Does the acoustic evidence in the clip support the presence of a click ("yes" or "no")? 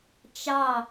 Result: no